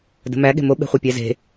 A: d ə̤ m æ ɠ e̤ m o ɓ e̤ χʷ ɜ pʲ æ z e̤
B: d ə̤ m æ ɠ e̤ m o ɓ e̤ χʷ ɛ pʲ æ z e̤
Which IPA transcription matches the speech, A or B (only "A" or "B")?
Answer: B